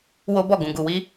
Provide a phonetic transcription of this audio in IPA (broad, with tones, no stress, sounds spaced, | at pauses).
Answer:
w o˦ b ɔ˦˨ ɡ ũ˨ ɡ u˨ w i˧